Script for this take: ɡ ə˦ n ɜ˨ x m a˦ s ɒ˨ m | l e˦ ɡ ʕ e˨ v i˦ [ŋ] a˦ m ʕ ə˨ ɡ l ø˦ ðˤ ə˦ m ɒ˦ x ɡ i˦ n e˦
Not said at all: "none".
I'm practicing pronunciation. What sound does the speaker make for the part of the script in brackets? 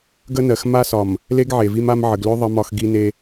m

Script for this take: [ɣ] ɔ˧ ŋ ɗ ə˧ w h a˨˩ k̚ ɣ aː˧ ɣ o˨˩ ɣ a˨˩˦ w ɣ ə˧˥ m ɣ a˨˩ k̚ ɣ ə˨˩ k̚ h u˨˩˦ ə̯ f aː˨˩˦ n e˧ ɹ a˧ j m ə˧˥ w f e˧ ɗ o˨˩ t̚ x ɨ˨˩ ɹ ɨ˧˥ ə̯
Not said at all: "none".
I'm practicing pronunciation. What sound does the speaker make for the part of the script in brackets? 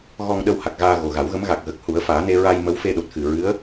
ɣ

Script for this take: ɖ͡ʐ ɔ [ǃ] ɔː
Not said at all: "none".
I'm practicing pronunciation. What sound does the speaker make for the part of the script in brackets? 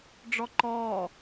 ǃ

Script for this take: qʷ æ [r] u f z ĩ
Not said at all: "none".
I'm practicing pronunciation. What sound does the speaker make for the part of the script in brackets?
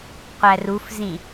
r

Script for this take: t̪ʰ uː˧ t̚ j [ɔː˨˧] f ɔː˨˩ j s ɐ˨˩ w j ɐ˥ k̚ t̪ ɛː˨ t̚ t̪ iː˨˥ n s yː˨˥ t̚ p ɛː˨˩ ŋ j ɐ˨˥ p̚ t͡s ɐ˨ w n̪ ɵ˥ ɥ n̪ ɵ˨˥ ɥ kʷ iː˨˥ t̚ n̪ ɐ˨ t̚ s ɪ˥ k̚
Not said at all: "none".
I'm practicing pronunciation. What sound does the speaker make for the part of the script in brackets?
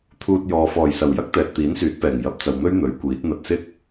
ɔː˨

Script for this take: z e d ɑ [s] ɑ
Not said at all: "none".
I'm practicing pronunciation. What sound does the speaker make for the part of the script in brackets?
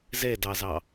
z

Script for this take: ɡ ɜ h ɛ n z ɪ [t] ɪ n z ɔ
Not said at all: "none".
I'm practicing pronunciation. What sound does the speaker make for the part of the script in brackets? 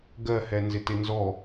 t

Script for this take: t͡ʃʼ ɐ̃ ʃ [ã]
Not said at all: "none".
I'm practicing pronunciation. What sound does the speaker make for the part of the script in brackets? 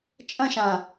ã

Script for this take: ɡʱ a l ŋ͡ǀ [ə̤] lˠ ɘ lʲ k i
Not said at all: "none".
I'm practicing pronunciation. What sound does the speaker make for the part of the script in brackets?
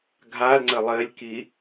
ə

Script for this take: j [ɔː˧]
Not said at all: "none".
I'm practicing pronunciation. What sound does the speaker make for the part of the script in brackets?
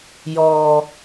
ɔː˧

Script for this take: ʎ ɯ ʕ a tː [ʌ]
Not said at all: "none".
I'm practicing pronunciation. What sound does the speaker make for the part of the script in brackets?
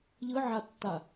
a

